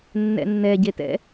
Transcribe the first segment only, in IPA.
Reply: nː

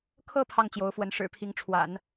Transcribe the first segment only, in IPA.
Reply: kʰ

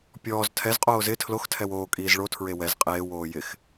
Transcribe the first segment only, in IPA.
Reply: pʲ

